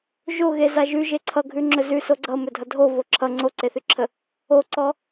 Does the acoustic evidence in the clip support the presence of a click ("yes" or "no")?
yes